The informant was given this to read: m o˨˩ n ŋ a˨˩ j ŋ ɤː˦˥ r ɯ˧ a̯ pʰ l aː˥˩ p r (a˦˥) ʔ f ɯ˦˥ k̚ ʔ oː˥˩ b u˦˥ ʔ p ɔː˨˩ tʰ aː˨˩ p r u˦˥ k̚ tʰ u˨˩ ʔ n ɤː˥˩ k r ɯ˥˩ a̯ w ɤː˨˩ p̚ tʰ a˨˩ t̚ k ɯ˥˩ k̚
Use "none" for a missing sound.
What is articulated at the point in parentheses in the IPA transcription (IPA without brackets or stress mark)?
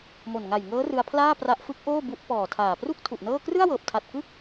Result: a˦˥